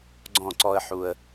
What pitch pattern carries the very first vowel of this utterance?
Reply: falling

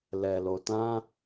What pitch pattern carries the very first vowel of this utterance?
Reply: low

